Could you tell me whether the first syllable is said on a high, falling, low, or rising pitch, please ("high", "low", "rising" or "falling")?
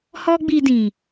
high